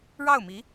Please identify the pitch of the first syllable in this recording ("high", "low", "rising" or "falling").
falling